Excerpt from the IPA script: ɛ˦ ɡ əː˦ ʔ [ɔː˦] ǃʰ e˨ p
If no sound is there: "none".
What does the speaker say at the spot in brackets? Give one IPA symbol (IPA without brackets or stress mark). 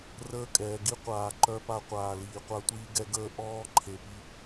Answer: ɔː˦